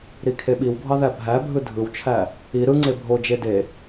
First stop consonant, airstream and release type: aspirated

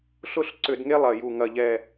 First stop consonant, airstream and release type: click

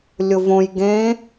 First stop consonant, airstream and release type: plain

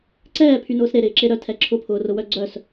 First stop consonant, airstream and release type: click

